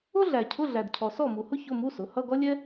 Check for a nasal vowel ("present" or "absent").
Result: absent